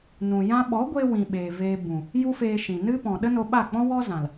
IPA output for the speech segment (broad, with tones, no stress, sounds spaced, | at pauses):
n ũ˨ j ã˧ ɓ ɔ˨˦ ɡʷ e˧ w ĩ˨ ɓ eː˨ v eː˧ b ũ˨ | j u˦ f eː˧ ʃ ĩ˨ n ɨ˦ p ɔ̃˨ ɗ ə˦ n o˧ ɓ a˦˨ k͡p ɔ̃˦ w ɔ˦ z ã˨ l